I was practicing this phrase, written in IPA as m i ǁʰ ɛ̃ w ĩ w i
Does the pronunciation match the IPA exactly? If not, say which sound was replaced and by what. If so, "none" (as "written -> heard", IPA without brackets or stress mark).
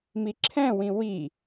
none